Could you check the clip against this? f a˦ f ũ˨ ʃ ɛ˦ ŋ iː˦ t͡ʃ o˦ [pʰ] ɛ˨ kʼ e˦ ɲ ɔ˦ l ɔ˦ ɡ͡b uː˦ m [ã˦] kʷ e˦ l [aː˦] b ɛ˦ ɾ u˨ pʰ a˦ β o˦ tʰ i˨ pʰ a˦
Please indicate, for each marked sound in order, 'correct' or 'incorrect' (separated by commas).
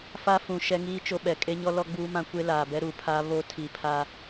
incorrect, correct, incorrect